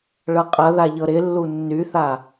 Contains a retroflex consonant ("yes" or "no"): yes